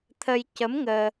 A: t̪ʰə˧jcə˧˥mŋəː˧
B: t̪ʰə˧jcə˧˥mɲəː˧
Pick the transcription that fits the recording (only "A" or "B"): A